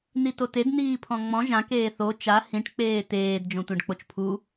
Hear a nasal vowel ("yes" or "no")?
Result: yes